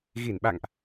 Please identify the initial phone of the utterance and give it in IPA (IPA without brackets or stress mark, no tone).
ɣ